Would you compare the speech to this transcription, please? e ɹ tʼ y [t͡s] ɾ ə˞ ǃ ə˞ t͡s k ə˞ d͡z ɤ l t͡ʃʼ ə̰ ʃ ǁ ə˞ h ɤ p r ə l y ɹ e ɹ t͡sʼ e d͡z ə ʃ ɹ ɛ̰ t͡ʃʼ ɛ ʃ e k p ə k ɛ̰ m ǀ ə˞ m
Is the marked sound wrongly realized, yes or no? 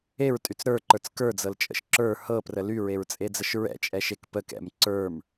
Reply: no